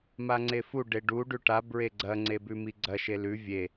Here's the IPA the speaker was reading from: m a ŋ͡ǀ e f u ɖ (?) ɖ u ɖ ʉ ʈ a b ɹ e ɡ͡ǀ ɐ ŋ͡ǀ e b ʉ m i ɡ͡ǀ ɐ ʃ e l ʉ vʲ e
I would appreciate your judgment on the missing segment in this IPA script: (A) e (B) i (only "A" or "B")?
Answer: A